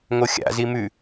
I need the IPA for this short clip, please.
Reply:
ŋ o xʲ a̰ z i m ʉ

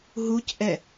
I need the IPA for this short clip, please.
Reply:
ɦ u c ʔ ɛ

